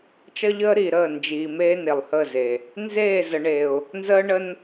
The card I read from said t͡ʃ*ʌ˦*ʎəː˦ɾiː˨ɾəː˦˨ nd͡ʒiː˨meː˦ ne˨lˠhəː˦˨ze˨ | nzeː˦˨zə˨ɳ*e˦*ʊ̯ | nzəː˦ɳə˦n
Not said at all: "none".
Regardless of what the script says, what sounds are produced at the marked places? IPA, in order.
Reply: ʌ˦, e˨

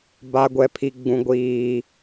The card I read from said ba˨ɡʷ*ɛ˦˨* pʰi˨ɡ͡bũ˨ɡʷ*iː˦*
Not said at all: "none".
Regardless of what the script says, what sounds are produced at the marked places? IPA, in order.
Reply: ɛ˨, iː˨

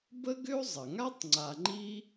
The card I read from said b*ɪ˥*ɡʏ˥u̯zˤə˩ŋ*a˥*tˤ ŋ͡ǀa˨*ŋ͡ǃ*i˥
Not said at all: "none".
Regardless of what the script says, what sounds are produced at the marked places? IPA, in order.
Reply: ə˥, a˥, ŋ͡ǃ

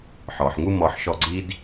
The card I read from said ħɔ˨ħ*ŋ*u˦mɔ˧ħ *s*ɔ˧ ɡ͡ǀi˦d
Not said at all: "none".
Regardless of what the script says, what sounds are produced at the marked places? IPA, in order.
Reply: ŋ, ʃ

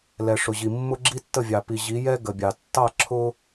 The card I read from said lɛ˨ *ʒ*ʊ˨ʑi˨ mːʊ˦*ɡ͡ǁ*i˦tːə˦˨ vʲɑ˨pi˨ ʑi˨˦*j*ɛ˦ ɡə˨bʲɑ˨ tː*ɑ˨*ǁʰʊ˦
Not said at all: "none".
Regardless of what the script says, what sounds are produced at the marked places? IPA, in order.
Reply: ʂ, ɡ͡ǁ, j, ɑ˦˨

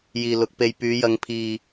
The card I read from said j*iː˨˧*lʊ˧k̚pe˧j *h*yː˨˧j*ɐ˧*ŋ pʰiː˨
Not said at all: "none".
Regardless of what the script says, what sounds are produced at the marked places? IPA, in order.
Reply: iː˨, p, ɐ˨˧

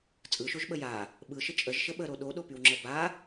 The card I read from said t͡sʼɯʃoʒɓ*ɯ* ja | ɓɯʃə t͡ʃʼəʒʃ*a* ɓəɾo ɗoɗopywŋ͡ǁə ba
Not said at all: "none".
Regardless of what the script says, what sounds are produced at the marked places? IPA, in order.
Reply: ə, ə

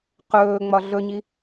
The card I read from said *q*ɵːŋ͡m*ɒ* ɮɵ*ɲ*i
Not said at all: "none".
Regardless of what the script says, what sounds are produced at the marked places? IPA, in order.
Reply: q, ɒ, ɲ

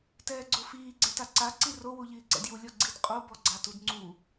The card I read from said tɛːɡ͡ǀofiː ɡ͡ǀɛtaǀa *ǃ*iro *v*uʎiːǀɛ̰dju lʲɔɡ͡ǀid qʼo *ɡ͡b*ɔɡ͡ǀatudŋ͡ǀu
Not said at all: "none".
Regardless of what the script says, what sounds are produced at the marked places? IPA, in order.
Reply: ǀ, w, b

